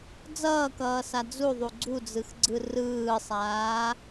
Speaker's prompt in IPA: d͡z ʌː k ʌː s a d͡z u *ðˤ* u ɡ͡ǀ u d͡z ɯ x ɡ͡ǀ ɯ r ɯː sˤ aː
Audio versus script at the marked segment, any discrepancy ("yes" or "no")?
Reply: no